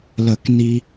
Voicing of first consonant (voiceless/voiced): voiced